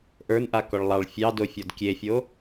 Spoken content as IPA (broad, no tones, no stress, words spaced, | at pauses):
ʔə˞nʔakɔɭ lˠɑɭ fʲɑdofʲɔd kʲefʲo